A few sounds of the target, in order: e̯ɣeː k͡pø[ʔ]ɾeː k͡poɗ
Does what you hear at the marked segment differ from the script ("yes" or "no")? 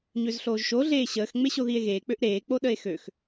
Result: no